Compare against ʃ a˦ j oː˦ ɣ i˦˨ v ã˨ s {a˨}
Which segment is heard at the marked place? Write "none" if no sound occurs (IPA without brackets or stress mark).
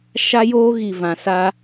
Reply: a˦